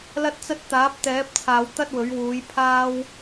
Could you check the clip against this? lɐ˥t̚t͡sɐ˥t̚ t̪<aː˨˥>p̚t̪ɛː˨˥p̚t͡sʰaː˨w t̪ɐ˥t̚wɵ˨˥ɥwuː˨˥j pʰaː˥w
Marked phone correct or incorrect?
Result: correct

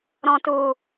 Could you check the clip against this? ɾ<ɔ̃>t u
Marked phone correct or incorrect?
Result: correct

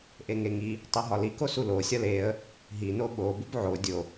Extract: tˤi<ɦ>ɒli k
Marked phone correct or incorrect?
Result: correct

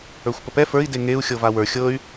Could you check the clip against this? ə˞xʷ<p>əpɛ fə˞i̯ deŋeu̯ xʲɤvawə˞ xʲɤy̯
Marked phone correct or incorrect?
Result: correct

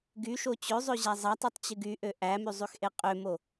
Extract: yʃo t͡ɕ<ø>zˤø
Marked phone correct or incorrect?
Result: correct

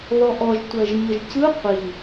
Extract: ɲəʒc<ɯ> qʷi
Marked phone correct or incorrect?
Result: correct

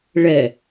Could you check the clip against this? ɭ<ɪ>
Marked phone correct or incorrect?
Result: incorrect: ɛ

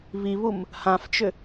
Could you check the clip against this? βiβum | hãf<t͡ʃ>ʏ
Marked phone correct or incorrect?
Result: correct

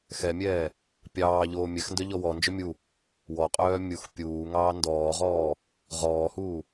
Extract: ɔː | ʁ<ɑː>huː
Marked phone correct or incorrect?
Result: incorrect: ɔː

